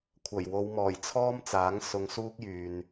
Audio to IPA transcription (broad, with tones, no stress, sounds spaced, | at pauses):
kʷʰ ɐ˨˩ j w o˨˧ w m ɔː˨˩ j t͡sʰ ɔː˥ m t͡s aː˨˥ ŋ s ʊ˧ ŋ s uː˥ k̚ j yː˨ n